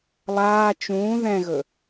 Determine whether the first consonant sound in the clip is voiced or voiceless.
voiced